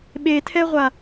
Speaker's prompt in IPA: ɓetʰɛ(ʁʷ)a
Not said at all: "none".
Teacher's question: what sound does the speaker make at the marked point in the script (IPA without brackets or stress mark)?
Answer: ʁʷ